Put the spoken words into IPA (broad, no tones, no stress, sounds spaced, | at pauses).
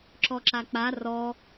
ǁ ɔ ǁ a k͡p a r ɔ